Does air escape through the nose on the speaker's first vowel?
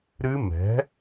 no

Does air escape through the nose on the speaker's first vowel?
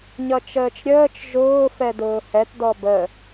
no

